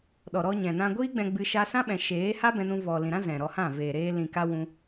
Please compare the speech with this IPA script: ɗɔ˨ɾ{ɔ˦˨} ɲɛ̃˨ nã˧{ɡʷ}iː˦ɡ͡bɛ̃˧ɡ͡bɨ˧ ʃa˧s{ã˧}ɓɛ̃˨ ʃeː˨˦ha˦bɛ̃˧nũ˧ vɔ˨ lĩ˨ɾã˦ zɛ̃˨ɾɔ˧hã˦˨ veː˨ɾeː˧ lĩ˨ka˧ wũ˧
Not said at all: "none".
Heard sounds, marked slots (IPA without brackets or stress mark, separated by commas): ɔ˧, ɡʷ, ã˦